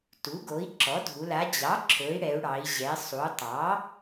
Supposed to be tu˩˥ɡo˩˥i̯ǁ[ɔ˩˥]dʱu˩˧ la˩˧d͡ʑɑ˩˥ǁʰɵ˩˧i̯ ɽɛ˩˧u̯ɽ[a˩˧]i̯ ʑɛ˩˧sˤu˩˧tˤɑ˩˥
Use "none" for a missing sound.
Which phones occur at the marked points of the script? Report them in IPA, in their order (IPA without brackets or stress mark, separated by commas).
ɔ˩˥, ɑ˩˧